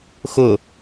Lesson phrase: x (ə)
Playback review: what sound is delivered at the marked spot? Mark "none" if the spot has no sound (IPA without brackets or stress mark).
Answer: ʊ